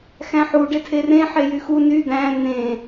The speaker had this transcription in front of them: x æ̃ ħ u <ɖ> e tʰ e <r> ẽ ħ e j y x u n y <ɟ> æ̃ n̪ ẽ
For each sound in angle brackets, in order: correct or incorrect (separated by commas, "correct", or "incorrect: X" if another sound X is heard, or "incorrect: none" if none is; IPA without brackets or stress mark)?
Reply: correct, correct, incorrect: d̪